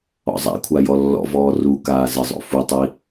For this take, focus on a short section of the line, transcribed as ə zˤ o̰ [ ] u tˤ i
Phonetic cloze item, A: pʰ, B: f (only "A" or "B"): B